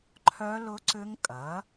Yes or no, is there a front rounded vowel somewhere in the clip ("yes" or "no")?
yes